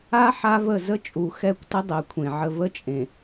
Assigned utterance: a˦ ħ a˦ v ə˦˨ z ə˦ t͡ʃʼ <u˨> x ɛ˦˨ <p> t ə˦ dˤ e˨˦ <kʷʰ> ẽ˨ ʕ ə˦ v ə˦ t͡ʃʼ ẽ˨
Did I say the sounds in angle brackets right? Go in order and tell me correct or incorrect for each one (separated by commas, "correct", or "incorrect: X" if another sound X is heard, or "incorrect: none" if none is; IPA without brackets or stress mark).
correct, incorrect: kʷ, correct